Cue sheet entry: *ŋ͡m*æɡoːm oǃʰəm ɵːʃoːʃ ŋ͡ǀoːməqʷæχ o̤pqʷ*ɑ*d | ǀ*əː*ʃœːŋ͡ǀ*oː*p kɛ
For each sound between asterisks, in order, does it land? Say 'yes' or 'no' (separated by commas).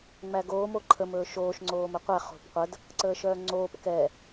yes, no, yes, yes